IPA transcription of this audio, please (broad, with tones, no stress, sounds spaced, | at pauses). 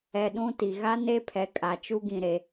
ɛ˨ ɗ ũ˦ t i˨ ɣ a˦ n e˦ pʰ ɛ˨ kʼ a˨ t͡ʃ u˦ ɡ ĩ˨ ɾ e˨